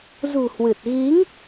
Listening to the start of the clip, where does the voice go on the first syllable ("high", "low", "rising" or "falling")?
low